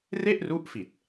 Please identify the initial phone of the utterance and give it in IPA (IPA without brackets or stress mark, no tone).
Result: r